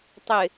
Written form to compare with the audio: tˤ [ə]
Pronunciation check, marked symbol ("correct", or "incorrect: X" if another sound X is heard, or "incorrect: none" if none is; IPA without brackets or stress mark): incorrect: ɪ